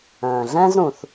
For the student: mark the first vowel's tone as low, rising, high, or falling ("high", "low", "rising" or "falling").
low